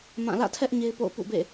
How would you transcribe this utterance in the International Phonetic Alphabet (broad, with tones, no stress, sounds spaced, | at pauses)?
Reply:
m ã˦˨ l ä̰˦˨ tʰ ɛ˦ ʔ ɲ e˦ ɪ̯ p o̰˦˨ ʊ̯ p ṵ˦˨ b ḛ˦˨